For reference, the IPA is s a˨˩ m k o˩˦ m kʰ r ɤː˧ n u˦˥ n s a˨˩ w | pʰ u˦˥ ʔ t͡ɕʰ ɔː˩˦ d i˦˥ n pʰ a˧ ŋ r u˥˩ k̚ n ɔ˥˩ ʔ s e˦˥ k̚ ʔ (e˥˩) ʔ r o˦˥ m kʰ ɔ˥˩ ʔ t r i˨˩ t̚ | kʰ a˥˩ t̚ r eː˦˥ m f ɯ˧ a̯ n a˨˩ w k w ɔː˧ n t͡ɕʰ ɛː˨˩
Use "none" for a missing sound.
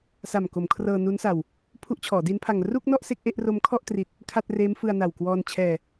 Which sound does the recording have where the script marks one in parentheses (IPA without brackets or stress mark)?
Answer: e˥˩